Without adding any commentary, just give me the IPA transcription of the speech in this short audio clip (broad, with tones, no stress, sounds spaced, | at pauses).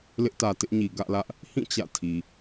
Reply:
l ɪ˦ ʔ t ä˨ t ɪ˦ ʔ ɲ i˨ ɡ ä̰˦˨ l ä˦ ʔ | h ĩ˦˨ t͡ɕ ä̰˦˨ tʰ i˨